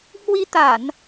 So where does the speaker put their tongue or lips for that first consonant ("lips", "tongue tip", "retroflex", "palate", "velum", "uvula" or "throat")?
throat